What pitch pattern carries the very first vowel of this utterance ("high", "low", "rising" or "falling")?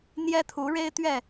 high